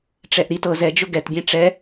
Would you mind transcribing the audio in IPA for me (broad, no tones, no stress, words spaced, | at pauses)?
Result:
ʈ͡ʂɛʔɾit ɤz ɛd͡ʒʊ ɡɛtbʲɛ̃ ʈ͡ʂɛ